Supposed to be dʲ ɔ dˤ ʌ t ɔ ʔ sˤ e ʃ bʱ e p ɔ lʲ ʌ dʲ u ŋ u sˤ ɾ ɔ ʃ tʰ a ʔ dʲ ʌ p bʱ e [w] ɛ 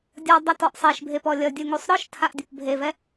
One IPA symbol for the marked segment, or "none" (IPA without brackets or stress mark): v